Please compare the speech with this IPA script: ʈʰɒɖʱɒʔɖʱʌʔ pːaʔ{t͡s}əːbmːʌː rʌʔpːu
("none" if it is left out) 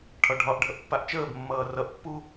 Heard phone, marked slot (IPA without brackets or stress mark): t͡ʃ